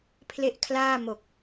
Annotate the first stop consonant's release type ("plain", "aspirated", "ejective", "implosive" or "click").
aspirated